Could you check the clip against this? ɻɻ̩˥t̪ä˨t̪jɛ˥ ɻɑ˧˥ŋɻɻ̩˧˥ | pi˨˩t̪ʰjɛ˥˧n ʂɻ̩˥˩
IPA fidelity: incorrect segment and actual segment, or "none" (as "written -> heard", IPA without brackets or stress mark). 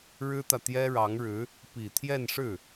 none